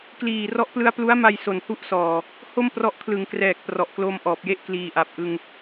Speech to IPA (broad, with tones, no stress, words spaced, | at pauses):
kliː˨˩rɔ˦˥ʔplɯ˦˥a̯ plu˦˥a̯ma˧j so˨˩nhu˥˩ʔsɔː˨˩ | ho˥˩mprɔ˦˥ʔ kʰlɯ˩˦ŋkrɛː˨˩k̚ prɔ˨˩ʔklo˧mʔɔː˨˩p̚je˥˩ʔ kliː˨˩ʔa˨˩p̚ʔɯ˧ŋ